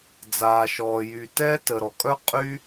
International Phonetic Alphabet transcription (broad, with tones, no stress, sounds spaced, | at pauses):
d͡z aː˩ ʃ ɔː˩ j y˩ t ɛː˦ t ə˩ ɾ ɔ˩ kʼ œ˦ qʼ y˦